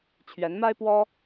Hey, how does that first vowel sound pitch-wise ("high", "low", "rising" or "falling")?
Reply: rising